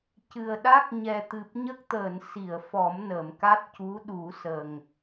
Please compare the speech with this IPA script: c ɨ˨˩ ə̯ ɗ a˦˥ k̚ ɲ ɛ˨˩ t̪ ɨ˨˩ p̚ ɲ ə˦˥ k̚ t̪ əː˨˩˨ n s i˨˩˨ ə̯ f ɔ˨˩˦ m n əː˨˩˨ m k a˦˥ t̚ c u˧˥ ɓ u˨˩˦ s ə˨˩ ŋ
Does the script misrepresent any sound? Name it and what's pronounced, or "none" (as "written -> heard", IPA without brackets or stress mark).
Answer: ɓ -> ɗ